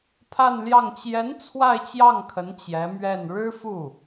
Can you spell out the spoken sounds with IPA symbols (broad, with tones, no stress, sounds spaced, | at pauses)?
pʰ a˥˧ n l j ɑ˥˩ ŋ t͡ɕ j ɛ˧˥ n t͡sʰ w a˥˧ ɪ̯ t͡ɕ j ɑ˥˩ ŋ kʰ ə˧˥ n t͡ɕ j ɛ˧˥ m ɥ ɛ˥˩ n ɻ ɻ̩˥ f u˥˩